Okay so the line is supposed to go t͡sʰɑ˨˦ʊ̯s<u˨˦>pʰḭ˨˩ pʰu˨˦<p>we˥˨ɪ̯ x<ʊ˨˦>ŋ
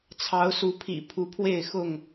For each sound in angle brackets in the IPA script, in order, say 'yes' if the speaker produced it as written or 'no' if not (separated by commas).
yes, no, no